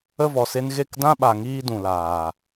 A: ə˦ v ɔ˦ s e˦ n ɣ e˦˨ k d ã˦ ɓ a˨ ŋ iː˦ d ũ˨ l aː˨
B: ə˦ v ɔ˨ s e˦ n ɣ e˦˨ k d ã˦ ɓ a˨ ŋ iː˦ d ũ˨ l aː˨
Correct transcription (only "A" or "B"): B